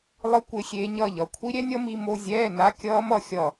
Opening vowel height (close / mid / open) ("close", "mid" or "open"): close